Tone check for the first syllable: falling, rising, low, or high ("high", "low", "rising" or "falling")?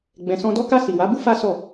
low